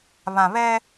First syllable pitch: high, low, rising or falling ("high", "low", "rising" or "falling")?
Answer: low